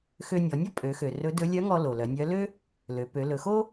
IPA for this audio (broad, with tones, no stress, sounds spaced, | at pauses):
x ø˧ nʲ ɔ˩˧ nʲ ɔ˥ pʼ ø˩˧ x ø˩ r ɵ˧˥ d ɵ˧˥ lʲ œ˧˥ ŋ ɔ˧ l o˩ l œ˩˧ nʲ œ˧˥ l ø˥ | l ø˩˧ p ø˩˧ l ɵ˩˧ x o˥